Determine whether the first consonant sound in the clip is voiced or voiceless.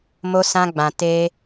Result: voiced